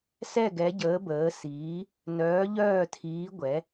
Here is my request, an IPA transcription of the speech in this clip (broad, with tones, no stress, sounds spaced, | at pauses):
s ɛ˦˨ ɡ ɛ˨˦ ɟ əː˨˦ b əː˨˦ s iː˨˦ | n œː˨˦ ʎ œː˦˨ tʰ iː˨˦ ɡʷ ɛ˨˦